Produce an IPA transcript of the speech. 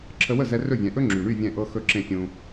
ǁʰə˧wə˥˩zɛ˧ rɵ˥˩vʲɛ̃˩˥ ʔɵ˥ŋ͡ǁy˩ɳy˥˩ vʲɛ̃˥˩ʔɤ˥ xɵ˥˩ǁẽ˥˩fʲũ˧

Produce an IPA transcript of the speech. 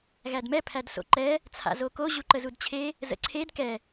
ɣædmɛ pʰædso̰ǃɛ | t͡sʰa̰zoko ʑuǃəzudt͡ɕʰe | zə̰ǀʰed kɛ

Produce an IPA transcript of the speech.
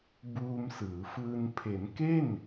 buː˧msɯː˩˦fɯː˧n pʰe˩˦nke˥˩n

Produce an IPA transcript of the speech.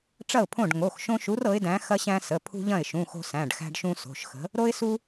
ʈ͡ʂɐ˥˩ʊ̯pʰõ˥˩ɖ ŋo˩˧˩xʃõ˦ʃu˨˥r ɤ˨˥ɪ̯dæ̃˨˥ xɐ˦ɕæ̃˦ sə˩˧˩ pʰṳ˦ʎɐ̃˥˩ɪ̯ʃũ˩˧˩ xo̤˦sæ̃˩˧˩ɖxæ̤˦ɖʃũ˦ so̤˩˧˩ʃxə̤˨˥ | ɾo˦ɪ̯su˦

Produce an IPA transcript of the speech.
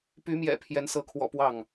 py˨˦mjɛ̰˨˩ pʰjɛ˨˦nsɤ˨˦kʰwɔ̰˨˩ pwɑ˥˨ŋ

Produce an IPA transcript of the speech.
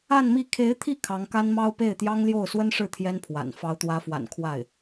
a˥˧nmi˥˩ kʰe˧˥ɪ̯t̪ʰi˥˩ kʰɑ˧˥ŋka˥nmɑ˥ʊ̯ pe˥˩ɪ̯t̪jɑ˥ŋljo˥˩ʊ̯ swə˥nʂɻ̩˥˩ t̪ʰjɛ˥npʰwa̰˨˩n fɑ˧˥ʊ̯t̪wä˧˥fwa̰˨˩n kʰwa˥˩ɪ̯

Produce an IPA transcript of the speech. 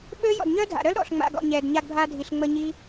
ɓø˦jɔ̰˨d ɲœ˦dʱa̰˨ɾœ˦l ɾɔ̰˨ɬŋ͡ma̰˨ ɡɔ̰˨ ɲɛ˨d ɲa˧ɡbʱa˧dʱi˨ɬ ŋ͡mə˧ɲi˦

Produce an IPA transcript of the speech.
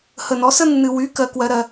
hə˨nɔ˨˦sə˦ nːɨ˨wy˨˦ kɜ˨˦kwɜ˨˦ɾɜ˨

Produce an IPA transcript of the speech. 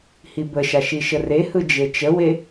hibəʃa ʃiʃərehɯ d͡ʒet͡ʃəwe

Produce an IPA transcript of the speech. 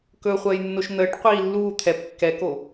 kɵχʷəːjnːoʃ n̪əːʈqʷiː lːuː t̪ʰɛp kːɛko

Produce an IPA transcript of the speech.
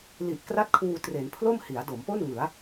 li˨˩ʔ kra˥˩t̚kʰuː˧tre˩˦n pʰlo˥˩mhi˩˦a̯do˩˦mpo˥˩n ŋɯ˩˦a̯

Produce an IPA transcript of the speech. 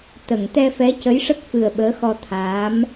t̪ə˨˩˨ŋ t̪ɛ˧fɛ˧˥ cə˧˥jʂə˦˥k̚fɨ˨˩ə̯ ɓəː˧˥xɔ˧ t̪ʰaː˧˥m

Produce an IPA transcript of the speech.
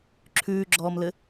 ǁʰʉːɡ͡ǁɔːmlɘ

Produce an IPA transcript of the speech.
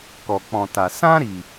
kɔ˨k͡pɔ̃˨ta˨ sã˦ɾiː˨

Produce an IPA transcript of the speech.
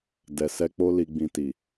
dɛ˨sɛ˧k͡po˦ li˧ɡ͡bĩ˧ ti˨

